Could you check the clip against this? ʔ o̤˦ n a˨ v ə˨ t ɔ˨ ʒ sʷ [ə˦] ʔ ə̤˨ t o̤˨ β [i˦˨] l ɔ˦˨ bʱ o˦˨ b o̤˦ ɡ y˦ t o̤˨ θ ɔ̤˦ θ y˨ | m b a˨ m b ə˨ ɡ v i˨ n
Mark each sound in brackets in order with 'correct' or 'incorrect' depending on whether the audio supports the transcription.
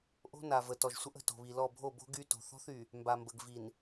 correct, incorrect

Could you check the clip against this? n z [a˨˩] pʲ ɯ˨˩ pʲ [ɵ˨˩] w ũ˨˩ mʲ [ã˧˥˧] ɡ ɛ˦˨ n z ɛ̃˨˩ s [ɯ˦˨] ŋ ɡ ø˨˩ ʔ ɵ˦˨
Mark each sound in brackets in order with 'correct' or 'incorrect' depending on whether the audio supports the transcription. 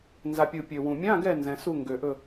correct, incorrect, correct, incorrect

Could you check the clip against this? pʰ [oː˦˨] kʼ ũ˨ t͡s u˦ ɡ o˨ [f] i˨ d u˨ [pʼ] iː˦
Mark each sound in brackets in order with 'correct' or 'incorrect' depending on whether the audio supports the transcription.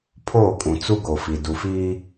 correct, correct, incorrect

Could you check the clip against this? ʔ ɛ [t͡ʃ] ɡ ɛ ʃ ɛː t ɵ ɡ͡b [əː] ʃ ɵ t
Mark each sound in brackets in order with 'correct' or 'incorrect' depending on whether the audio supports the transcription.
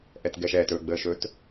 incorrect, correct

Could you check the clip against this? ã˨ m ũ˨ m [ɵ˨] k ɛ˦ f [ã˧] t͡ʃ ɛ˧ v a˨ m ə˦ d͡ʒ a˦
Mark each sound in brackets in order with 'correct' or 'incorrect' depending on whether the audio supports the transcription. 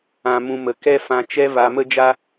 incorrect, correct

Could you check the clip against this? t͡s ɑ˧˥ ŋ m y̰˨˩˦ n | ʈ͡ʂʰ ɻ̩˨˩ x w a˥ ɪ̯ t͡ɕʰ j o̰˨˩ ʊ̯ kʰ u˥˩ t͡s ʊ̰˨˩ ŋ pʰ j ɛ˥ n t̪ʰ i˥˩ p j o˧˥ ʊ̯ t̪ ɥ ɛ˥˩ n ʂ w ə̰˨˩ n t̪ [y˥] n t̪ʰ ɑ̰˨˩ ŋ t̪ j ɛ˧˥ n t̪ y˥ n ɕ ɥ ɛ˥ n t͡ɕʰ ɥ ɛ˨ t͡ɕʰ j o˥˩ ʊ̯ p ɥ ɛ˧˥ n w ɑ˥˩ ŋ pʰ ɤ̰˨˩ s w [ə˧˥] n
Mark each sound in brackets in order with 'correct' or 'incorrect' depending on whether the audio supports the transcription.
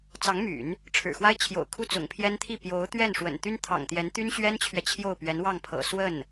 correct, incorrect

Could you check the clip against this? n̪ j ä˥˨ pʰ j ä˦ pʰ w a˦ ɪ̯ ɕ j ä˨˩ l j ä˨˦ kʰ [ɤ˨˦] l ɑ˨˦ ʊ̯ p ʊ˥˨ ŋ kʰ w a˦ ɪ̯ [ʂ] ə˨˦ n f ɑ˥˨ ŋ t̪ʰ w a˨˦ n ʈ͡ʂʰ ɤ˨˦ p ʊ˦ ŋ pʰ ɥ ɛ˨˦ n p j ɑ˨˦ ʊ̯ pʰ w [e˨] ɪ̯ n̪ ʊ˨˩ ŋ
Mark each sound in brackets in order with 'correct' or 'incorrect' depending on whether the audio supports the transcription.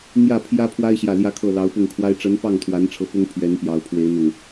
incorrect, incorrect, incorrect

